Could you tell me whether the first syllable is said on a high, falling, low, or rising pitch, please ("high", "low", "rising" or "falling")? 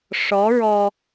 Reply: rising